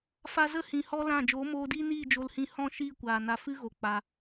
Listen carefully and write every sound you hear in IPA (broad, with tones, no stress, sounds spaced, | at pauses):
f a˧ z ə˦˨ h ĩ˨ h ɔ˧ l ã˦˨ d͡ʒ oː˨˦ m oː˧ d iː˦ n iː˦˨ d͡ʒ o˧ l h ĩ˦˨ h ɔ̃˦˨ ʃ iː˦˨ kʷ aː˨ n a˧ f ɨ˦ ɣ o˨ k͡p a˧